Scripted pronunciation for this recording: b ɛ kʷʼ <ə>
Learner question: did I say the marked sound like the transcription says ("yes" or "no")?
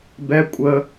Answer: yes